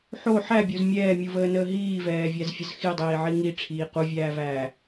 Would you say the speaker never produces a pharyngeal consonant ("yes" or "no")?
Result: no